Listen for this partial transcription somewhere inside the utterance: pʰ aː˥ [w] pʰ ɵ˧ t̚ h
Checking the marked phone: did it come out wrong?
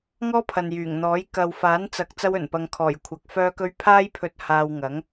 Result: yes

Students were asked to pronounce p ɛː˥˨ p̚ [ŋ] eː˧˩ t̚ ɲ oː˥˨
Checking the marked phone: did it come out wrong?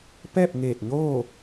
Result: no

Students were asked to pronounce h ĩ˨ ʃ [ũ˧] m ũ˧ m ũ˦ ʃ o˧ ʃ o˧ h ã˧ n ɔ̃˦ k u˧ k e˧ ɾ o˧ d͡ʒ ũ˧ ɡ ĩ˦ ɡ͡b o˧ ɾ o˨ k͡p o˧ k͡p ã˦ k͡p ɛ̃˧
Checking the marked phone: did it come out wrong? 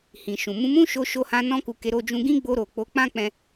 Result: yes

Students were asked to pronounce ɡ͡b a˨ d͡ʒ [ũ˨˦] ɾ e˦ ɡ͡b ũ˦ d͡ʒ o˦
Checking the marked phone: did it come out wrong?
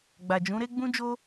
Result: no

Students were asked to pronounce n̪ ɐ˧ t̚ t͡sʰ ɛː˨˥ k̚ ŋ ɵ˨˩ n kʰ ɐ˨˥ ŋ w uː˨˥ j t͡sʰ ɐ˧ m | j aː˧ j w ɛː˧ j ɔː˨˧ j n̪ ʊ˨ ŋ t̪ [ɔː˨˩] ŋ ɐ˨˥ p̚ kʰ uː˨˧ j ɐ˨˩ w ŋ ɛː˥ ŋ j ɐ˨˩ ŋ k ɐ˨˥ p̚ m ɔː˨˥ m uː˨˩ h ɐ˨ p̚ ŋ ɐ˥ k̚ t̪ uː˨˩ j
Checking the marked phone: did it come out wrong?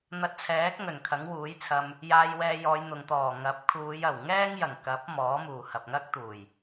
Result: no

